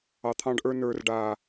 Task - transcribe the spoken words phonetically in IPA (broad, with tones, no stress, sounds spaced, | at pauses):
ɑ˨ t̪ʰ ɑ̃˧ ɖ ʔ ə˞˧ n ə˞˨ r ɖ a˨